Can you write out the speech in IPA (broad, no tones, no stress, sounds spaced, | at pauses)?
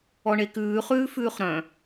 ɔ ɳ e k ʉː χ ʉː f ʉː χ ɾ œ̃